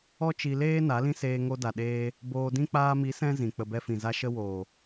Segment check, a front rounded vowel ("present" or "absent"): absent